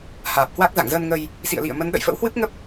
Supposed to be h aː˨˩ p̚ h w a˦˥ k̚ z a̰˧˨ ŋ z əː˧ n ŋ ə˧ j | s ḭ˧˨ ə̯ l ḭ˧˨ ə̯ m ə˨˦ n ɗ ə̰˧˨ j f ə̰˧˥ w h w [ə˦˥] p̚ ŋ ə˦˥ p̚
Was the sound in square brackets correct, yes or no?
no